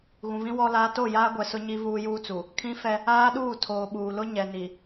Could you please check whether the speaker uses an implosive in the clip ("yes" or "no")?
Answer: yes